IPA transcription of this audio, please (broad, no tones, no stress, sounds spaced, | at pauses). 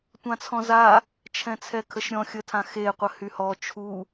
tʷ ã t͡sʰ ɔ̃ z a | t͡ʃʰ ɛ̃ t͡sʰ ɛ kʰ ə ʃ ɾʲ ɔ̃ xʲ ə tʰ ã x e qʷ ə h y h ɔ t͡ʃʰ u